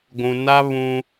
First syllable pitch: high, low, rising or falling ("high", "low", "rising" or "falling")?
low